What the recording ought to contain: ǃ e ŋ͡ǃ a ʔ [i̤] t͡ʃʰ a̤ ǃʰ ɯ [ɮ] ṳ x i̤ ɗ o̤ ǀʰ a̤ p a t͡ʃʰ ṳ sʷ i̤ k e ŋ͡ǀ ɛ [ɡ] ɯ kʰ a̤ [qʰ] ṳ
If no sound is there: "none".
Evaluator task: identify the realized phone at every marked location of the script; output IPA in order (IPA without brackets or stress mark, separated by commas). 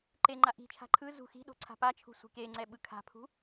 i̤, z, ɓ, pʰ